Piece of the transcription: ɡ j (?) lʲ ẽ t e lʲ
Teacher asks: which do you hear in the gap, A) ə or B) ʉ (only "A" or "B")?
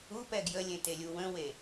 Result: A